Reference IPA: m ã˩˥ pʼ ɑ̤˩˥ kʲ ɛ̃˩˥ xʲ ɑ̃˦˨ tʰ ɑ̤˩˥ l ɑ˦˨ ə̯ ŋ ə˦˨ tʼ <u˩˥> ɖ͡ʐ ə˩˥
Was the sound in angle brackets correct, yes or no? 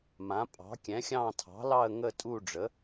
no